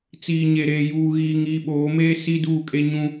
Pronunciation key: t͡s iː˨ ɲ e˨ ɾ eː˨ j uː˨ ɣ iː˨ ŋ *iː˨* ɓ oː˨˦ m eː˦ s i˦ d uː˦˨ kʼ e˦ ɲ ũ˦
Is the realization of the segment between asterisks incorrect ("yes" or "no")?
no